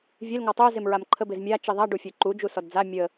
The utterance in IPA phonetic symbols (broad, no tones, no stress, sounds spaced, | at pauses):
vʲ e l ŋ ɔ tˤ œ z e m ɹ a m ǃʰ ə b ɪ z mʲ a t͡ʃ i ðˤ a ɖ u fʲ œ ǃ u d͡ʒ u s ɔ d d͡z a mʲ ə